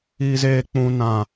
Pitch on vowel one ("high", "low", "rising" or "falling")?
high